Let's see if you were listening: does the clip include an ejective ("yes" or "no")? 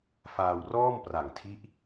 no